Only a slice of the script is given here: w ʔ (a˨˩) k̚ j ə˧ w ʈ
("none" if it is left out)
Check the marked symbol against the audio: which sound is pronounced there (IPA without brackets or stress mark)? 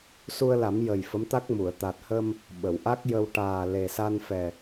a˦˥